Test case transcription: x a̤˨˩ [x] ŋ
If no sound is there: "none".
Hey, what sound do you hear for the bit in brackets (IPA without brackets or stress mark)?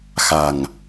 none